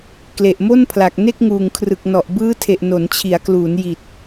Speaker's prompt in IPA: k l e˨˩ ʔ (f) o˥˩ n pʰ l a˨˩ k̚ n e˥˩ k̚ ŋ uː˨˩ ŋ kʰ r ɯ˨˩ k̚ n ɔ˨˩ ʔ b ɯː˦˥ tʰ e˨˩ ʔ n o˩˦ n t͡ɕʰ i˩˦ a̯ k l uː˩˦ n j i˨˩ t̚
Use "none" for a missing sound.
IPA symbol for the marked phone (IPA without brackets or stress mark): m